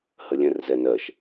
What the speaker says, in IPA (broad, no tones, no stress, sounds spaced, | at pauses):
h ə lʲ ɛ̃ r z ɛ n ɜ ʃ